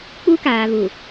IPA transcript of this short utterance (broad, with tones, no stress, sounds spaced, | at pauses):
k͡p u˦ k aː˨ β u˨